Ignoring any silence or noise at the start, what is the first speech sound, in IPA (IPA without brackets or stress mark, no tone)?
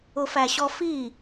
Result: ʊ